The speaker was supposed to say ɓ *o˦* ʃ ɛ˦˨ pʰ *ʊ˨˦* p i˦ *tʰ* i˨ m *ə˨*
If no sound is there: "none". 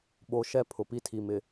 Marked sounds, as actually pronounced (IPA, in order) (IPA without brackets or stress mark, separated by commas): o˦, ʊ˨, tʰ, ɪ˨